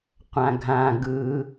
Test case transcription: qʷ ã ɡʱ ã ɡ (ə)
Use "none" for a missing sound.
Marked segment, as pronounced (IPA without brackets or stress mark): ɯ